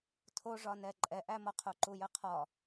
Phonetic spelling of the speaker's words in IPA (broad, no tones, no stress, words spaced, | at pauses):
tʰoʐɒnɛ ǃʼɛʔæmɒ qʰoǃujəqʰɒ